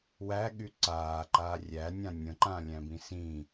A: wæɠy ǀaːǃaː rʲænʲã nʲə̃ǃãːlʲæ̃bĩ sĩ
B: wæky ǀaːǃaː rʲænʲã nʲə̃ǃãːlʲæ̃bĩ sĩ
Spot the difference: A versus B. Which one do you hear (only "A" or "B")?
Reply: A